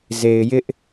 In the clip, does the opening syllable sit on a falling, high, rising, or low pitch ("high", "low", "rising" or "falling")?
low